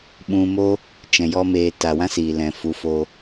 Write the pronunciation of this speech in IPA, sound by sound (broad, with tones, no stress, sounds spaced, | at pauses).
ɓ ũ˧ m o˦ | t͡ʃ ɛ̃˨ j ɔ˦ m eː˧ t a˨ w ã˦ s iː˨ l ɛ̃˨ f u˨˦ f oː˧